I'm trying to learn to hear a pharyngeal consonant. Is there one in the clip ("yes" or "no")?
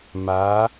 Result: no